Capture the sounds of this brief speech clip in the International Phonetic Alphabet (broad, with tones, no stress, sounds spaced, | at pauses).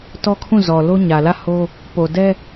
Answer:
t ɔ˦ kʰ ũ˦˨ z ɔ˨ l o˦ ɲ ä˨ l ä˦˨ h o˦ | p o˨ d ɛ˦